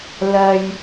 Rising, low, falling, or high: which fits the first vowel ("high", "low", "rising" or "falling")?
low